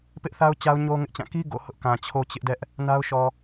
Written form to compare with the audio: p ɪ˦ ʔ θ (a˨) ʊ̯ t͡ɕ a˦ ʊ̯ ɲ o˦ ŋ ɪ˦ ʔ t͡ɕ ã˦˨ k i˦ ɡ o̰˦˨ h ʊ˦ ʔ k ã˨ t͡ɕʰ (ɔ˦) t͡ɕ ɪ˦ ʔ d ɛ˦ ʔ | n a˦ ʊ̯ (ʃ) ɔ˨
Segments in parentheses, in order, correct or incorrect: incorrect: a˦, incorrect: o˦, correct

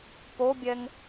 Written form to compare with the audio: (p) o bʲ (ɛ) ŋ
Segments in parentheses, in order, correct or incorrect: correct, correct

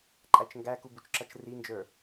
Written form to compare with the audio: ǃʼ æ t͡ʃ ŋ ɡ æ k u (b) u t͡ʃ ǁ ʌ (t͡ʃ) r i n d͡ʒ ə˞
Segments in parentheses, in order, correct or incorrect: correct, correct

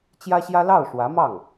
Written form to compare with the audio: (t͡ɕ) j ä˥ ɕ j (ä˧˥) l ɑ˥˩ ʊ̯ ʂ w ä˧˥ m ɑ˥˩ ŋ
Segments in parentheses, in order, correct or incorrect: correct, incorrect: ä˥

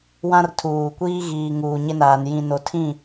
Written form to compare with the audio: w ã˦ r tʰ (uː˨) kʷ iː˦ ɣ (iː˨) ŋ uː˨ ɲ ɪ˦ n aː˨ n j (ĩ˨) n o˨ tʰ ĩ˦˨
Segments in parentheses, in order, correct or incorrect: correct, correct, correct

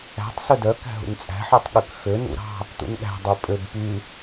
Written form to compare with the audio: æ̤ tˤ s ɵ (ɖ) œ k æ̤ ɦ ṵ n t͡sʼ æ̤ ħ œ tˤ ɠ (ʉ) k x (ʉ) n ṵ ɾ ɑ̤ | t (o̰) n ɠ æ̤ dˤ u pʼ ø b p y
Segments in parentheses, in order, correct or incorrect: incorrect: d, correct, incorrect: ø, incorrect: ṵ

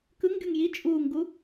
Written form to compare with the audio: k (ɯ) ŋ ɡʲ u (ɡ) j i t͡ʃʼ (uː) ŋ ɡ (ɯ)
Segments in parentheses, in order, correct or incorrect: correct, incorrect: ŋ, correct, incorrect: u

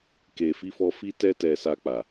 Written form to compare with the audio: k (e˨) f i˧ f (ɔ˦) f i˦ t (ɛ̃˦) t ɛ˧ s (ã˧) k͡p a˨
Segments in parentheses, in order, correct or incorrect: correct, incorrect: ɔ˧, incorrect: ɛ˦, incorrect: a˧

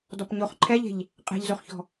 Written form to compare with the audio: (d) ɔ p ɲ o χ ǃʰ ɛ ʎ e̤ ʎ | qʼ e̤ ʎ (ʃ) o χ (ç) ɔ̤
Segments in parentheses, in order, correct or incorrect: correct, incorrect: z, correct

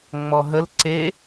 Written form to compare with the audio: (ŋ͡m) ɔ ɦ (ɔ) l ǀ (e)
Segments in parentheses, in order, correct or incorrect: correct, incorrect: ə, correct

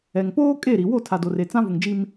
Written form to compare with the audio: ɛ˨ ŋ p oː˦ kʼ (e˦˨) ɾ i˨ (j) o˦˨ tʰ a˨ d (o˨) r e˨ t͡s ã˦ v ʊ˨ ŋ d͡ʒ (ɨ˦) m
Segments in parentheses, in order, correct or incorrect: correct, incorrect: w, correct, incorrect: i˦

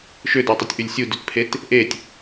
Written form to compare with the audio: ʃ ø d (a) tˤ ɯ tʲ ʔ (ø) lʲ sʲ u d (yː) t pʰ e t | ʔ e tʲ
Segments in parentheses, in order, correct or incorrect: incorrect: æ, incorrect: y, incorrect: y

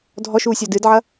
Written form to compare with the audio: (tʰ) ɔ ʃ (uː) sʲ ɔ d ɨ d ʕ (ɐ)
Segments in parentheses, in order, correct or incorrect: incorrect: dʱ, correct, correct

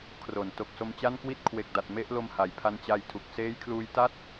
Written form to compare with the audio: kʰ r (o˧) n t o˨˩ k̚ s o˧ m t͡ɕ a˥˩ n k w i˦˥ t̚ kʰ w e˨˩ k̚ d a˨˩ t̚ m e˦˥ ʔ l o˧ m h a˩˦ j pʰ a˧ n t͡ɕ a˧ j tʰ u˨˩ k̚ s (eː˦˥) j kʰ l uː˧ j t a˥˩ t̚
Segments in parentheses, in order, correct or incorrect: incorrect: o˩˦, correct

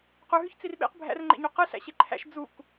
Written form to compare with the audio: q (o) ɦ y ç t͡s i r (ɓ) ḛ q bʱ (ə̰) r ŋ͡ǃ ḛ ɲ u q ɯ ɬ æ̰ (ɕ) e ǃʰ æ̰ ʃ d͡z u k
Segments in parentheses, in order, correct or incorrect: incorrect: u, correct, incorrect: æ̰, correct

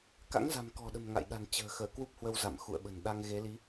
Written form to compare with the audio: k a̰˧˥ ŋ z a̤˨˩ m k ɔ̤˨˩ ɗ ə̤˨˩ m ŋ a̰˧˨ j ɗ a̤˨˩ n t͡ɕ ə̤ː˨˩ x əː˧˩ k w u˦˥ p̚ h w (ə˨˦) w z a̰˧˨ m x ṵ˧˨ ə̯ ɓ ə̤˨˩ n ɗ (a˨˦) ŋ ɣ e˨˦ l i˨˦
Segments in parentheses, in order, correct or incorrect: incorrect: ə˧, incorrect: a˧

